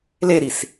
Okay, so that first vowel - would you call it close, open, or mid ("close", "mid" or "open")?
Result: mid